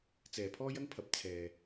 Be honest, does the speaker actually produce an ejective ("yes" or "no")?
no